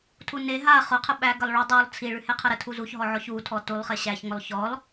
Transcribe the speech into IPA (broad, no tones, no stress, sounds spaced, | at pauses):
tʰ u n e ɦ a χ ʊ qʰ ə ɓ æ ɡ ə lˠ ɭ u dˤ u lˠ t͡sʰ i ɭ ʉ h e qʰ ə ɾ ə tʰ u z u ç ɦ ɔ ʕ ɔ ç u tʰ ɔ t u lˠ χ e ɕ æ ç ŋ ʊ lˠ ç ɔ lˠ